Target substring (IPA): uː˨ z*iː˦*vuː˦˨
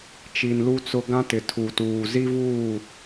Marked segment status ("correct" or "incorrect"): incorrect